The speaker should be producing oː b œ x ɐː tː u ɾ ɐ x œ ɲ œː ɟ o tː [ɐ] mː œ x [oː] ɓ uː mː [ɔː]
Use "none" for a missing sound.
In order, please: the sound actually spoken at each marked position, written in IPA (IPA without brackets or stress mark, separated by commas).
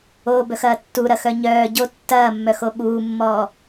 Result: ɐː, o, ɔː